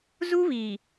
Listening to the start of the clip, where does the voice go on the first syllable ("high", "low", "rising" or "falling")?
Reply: high